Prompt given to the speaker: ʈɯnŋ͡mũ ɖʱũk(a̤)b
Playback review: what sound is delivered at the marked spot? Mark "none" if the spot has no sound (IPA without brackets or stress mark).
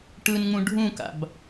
a̰